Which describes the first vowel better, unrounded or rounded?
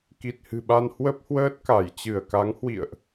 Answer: unrounded